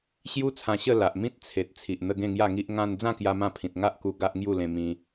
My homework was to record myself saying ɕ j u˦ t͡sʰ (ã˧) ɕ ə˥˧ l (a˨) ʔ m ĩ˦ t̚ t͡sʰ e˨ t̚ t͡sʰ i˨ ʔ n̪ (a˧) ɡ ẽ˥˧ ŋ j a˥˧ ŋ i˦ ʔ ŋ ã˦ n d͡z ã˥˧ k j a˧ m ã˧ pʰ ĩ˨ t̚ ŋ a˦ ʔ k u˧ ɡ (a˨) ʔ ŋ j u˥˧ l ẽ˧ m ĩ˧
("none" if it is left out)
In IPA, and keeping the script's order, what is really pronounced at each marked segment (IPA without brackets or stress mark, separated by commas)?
ã˧, a˨, ə˧, a˦